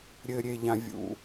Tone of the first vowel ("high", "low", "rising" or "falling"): low